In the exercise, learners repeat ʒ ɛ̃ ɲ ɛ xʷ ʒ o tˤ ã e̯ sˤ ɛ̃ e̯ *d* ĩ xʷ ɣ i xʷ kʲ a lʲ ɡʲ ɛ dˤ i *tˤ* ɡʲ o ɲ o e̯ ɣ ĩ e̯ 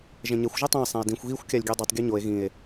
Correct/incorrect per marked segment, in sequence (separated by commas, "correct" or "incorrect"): correct, correct